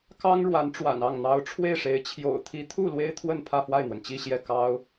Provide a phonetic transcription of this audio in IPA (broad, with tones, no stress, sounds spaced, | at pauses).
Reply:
k ɑ˥ ŋ ɻ w a˧˥ n ʈ͡ʂ w a̰˨˩ n ɑ˥˩ ŋ n̪ ɑ˧˥ ʊ̯ ʈ͡ʂʰ w e˥˩ ɪ̯ ʂ e˧˥ ɪ̯ t͡ɕʰ j o̰˨˩ ʊ̯ t̪ʰ i˧˥ t̪ʰ u˥˩ l w e˥ ɪ̯ t̪ʰ w ə˥˧ n pʰ ä˥˧ f w a˥˩ ɪ̯ n̪ w ə˩ n t͡ɕ i˥˧ ɕ j ɛ˥˩ k ɑ˥ ʊ̯